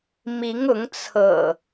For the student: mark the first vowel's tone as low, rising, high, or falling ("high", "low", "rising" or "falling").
rising